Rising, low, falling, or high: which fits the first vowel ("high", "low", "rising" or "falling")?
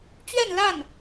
falling